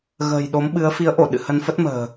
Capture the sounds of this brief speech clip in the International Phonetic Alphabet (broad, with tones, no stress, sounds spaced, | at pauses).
ɣ ə̤ː˨˩ j ɗ o˨˦ m ɓ ɨ˨˦ ə̯ f i˨˦ ə̯ ʔ o˧˩ ɗ ɨ̰˧˨ h ə˧ n f ə˦˥ t̚ m ə̤ː˨˩